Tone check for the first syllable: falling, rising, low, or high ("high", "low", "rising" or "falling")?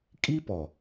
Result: high